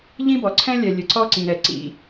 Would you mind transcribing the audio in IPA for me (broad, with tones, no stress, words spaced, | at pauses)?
ʎĩ˥bɔ˩ǀʰɛ̃˥ lʲɛ˩lʲɘ˩ ǀɔ˥ǀĩ˩ɾɛ˩ǀḭ˩